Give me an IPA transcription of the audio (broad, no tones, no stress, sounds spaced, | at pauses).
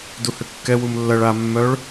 d u h ʏ kː ɛ w u m lː ɐ ɭ a mː œ ɭ